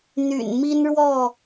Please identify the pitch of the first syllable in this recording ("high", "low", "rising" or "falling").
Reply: low